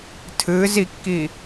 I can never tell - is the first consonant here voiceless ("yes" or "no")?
yes